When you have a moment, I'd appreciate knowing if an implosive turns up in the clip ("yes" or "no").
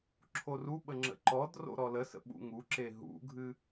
yes